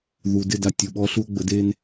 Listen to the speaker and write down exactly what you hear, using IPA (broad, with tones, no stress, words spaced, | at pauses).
ðu˨dɪ˦˨d a˨tʲu˨ɓɔ˧ɬu˧o̯ ɡ͡bə˨˦de˦n